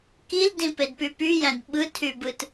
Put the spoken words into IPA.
k i l d ĩ p e d p y p y j æ̃ d ɓ ɯ tʰ y b ɯ t

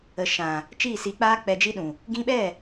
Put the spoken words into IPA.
ə˨ ʃ ã˨ | t͡ʃ iː˦˨ s i˨ k͡p aː˧ k͡p ɛ˨ d͡ʒ i˧ ɗ ũ˨ | ɡ ĩ˧ ɓ ɛ˦˨

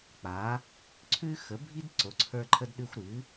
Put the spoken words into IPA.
k͡p a˨˦ | ǀʰ ʉ˦ x ə˨˦ bʱ i˦ d ǀ o˨˦ ǀʰ ə˞˦ ǃʰ ə˦ d ɗ ʉ˦ xʷ ɾ ɨ˨˦

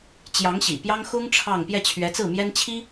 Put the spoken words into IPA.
t͡ɕ j ɑ˧˥ ŋ ɕ ḭ˨˩ p j ɑ˥ ŋ x ʊ˥ ŋ ʈ͡ʂʰ ɑ˥˧ ŋ p j ɛ˥˩ t͡ɕʰ ɥ ɛ˧˥ t͡s ɹ̩˥˩ m j ɛ˥ n t͡ɕʰ i˥

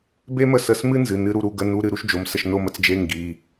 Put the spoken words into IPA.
b e˥ m ə˥˩ s ə˧˥˧ s m ɨ˥ n z ɨ˩˧˩ n ɨ˧ ɾ u˧ ɾ u˧˥˧ ɡ ə˧˥˧ n u˧˥˧ ɾ ɨ˧ ɾ u˥ ʃ d͡ʒ o˩˧˩ m s ə˥˩ ʃ n o˥˩ m ə˧ t͡s d͡ʒ e˧˥˧ ŋ ɡ i˩˧˩

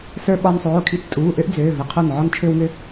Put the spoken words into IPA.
s ə˞˧ ɓ ɒ˧ n sˤ oː˩˧˩ kʰ i˧ t͡s tʼ uː˩˧˩ ʔ ø˥ ʔ d͡z øː˩˧˩ v ə˩˧˩ qʰ o˧˩ n ʕ ɒ˧ n t͡ʃʰ ø˥ w ŋ ø˥

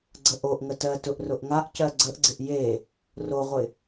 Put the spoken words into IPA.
ɡ͡ǀ ə ʔ o ʔ ŋ ə t ɜ t ʊ ʔ r ʊ ʔ ŋ a ʔ c ɜ ɡ͡ǀ ə ʔ ɡ͡ǀ ɪ ʔ j e | r o ʁʷ ɪ

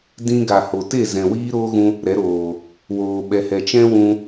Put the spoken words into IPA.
d ĩ˧ ɡ a˨ h o˨ t e˦˨ z ɛ̃˨ w iː˦ ɾ oː˦ ɣ ũ˧ | ɾ ɛ˨˦ ɾ oː˨ | w oː˨ ɓ ɛ˨ h ɛ˨ t͡ʃ ɛ̃˦ w ũ˧

